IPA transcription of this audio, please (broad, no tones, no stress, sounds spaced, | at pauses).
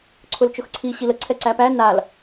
ǀʰ ʊ l t͡ʃ ʊ x ǀʰ i ɕ i l ə ǀʰ ɛ ǀ æ p æ n a l